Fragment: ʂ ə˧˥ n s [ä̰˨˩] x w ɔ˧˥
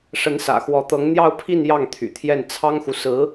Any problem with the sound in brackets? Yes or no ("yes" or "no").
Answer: no